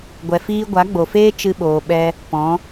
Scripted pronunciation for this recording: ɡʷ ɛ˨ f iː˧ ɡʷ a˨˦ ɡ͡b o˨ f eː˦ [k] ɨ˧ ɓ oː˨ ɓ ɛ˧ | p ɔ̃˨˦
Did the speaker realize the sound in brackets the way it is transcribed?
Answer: no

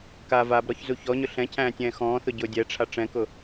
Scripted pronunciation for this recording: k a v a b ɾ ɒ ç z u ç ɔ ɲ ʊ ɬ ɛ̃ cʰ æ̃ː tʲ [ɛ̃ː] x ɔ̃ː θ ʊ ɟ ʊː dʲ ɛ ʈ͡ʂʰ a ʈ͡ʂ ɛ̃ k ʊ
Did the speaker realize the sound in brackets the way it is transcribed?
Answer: yes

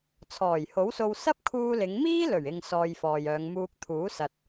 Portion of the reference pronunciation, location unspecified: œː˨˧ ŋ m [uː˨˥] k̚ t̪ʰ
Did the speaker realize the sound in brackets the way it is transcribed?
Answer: no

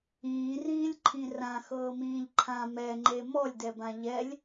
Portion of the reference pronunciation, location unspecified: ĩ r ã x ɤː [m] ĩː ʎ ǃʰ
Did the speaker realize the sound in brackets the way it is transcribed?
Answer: yes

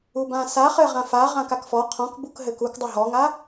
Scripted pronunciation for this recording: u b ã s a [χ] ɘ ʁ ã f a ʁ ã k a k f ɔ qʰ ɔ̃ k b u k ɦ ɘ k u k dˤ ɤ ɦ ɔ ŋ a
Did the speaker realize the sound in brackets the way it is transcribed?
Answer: yes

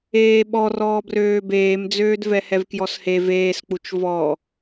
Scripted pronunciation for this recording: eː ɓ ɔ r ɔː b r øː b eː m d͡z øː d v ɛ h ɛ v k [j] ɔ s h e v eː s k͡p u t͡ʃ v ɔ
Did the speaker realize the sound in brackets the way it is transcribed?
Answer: yes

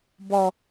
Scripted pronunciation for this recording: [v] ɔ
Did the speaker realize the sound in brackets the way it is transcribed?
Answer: no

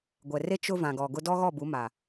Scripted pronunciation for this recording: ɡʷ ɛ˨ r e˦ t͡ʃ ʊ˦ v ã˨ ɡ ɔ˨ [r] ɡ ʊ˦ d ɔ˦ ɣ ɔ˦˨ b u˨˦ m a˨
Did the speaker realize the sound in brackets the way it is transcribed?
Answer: no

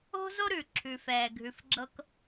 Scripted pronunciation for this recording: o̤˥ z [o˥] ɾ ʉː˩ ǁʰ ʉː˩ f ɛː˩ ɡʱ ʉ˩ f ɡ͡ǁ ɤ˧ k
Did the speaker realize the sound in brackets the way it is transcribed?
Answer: yes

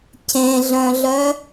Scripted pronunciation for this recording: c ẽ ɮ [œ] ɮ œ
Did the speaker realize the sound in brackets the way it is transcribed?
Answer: no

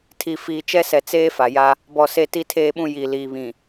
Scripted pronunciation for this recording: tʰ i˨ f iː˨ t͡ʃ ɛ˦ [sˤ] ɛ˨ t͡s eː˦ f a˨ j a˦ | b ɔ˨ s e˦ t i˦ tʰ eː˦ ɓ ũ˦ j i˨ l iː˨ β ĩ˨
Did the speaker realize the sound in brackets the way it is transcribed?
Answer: no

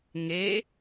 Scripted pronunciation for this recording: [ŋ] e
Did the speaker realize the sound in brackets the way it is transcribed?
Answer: yes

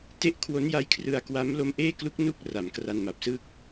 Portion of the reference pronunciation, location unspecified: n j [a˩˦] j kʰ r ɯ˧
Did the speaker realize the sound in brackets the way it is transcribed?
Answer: no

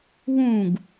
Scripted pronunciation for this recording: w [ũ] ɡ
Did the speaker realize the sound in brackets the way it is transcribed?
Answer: yes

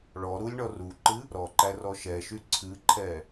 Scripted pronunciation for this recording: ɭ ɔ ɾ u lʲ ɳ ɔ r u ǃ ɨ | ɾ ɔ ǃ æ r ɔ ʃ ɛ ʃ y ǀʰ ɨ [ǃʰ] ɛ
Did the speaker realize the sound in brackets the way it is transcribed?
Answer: yes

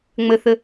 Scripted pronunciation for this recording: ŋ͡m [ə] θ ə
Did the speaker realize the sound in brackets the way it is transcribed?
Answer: yes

